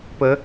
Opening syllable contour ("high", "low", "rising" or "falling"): rising